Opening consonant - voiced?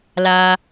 yes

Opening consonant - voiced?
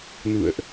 yes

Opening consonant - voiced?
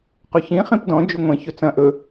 no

